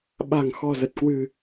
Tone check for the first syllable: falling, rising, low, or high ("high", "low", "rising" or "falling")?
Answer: low